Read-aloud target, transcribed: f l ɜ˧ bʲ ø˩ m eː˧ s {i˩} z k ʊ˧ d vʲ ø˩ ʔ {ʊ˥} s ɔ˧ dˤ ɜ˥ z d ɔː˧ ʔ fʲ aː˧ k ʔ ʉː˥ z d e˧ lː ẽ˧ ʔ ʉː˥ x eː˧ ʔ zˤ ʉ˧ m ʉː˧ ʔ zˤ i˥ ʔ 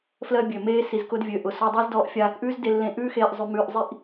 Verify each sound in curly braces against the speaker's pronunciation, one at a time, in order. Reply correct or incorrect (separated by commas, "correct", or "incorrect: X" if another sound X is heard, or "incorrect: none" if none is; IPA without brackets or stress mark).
correct, incorrect: ʊ˩